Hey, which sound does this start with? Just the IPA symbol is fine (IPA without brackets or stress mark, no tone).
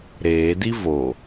ɾ